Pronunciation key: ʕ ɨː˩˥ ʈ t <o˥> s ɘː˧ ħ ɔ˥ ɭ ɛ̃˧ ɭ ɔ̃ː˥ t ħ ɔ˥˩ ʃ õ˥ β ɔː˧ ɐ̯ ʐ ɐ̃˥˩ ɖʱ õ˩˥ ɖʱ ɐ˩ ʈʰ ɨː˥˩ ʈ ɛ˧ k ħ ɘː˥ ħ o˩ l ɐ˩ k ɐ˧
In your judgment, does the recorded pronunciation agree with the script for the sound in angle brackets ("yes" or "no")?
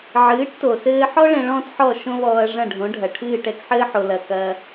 no